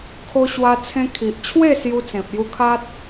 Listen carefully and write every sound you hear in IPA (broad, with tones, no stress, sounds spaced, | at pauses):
kʰ o˧ ɕ w a˧ t͡sʰ ẽ˧ kʰ i˨ ʔ t͡ɕʰ w e˥˧ s j u˧ t͡s ẽ˨ p̚ j u˧ kʰ a˦ t̚